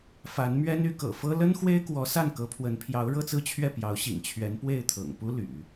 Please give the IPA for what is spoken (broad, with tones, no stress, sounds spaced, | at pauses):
f a˧˥ n m ɥ ɛ˥ n y˧˥ k ɤ̰˨˩ f ɤ˥ l ə˥ n x w e˥ ɪ̯ k w ɔ˧˥ s a˥˩ n k ɤ˧˥ pʰ w ə˧˥ n pʰ j ɑ˧˥ ʊ̯ ɻ ɤ˥˧ t͡s ɹ̩˥˧ t͡ɕʰ ɥ ɛ˥˩ p j ɑ˧˥ ʊ̯ ɕ ḭ˨˩ ŋ t͡ɕʰ ɥ ɛ˧˥ n p w e˥˩ ɪ̯ t̪ʰ ɤ̰˨˩ ŋ p u˥ l y̰˨˩˦